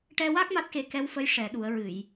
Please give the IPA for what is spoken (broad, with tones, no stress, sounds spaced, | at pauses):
ʈ ɛ˧ w a˦˥ k̚ m a˦˥ t̚ x e˧ k ɛ˧˥ w f ə˧˥ j ʂ ɛ˨˩˦ ɗ u˨˩˦ ə̯ ɹ ɨ˨˩˨ j